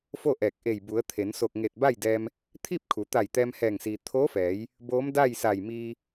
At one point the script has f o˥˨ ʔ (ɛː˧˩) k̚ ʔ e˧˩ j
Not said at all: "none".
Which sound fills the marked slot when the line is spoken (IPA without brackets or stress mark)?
ɛː˧˩